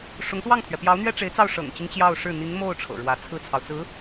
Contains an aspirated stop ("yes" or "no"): yes